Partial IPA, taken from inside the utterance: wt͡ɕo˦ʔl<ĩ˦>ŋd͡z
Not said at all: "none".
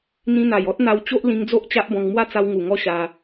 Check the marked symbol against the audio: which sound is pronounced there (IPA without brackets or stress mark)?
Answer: ĩ˧